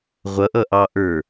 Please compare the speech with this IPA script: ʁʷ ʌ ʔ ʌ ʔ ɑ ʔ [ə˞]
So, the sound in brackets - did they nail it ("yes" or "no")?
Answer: yes